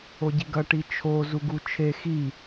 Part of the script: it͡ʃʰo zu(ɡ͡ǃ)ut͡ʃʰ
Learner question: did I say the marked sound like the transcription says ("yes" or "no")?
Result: no